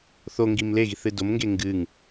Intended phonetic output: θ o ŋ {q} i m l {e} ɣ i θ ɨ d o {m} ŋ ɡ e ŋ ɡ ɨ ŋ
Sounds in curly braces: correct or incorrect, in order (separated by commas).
incorrect, correct, correct